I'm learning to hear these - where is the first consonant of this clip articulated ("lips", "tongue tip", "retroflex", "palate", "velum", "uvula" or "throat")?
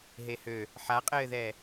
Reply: throat